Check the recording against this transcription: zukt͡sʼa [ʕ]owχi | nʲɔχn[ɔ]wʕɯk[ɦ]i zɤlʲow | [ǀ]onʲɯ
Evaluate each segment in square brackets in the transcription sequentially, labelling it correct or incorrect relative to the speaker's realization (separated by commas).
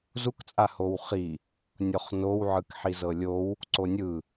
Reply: incorrect, incorrect, incorrect, correct